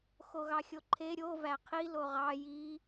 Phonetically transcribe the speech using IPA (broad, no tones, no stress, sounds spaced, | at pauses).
x o ɣ ɑ xʲ o ǃʰ e ɾʲ o v æ qʰ i l o ʁ ɑ j i